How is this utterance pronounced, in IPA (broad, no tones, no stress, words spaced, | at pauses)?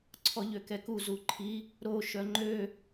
ǀʰɔʎøkɛku zuǃʰi | ɾo ʃœŋ͡ǃø